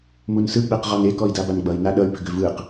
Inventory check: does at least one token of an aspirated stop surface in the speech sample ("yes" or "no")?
no